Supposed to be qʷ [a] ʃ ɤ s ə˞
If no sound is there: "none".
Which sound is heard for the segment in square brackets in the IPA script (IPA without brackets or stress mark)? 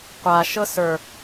a